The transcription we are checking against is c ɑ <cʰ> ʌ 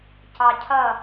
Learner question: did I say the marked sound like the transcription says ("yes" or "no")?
yes